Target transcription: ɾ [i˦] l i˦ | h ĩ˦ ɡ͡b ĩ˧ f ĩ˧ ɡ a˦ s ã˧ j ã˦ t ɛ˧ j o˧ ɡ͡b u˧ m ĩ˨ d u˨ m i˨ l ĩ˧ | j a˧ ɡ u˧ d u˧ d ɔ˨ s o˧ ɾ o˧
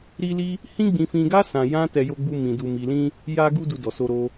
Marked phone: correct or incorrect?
correct